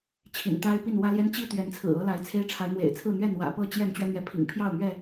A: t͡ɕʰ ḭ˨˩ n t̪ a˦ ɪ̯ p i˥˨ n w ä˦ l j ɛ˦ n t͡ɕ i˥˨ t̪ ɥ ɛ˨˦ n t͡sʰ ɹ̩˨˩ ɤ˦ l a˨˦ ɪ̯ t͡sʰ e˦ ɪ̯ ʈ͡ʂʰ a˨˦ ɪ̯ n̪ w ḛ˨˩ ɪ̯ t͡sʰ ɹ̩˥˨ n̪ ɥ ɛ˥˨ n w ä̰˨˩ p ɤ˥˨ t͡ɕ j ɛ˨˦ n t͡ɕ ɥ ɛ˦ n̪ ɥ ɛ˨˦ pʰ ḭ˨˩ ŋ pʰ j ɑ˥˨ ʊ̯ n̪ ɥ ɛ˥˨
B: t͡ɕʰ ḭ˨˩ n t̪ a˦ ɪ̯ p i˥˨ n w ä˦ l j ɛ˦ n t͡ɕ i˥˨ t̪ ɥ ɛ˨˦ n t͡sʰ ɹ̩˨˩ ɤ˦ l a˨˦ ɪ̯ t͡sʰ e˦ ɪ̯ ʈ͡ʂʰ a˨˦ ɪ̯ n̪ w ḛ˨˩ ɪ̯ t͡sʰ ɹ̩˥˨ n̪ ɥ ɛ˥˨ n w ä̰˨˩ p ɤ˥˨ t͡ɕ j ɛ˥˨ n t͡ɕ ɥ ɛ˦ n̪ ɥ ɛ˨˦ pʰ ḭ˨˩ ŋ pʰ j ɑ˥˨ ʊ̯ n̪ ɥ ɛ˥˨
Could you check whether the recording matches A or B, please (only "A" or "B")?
B